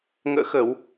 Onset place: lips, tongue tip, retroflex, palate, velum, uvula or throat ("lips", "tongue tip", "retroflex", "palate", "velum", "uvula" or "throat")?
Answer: velum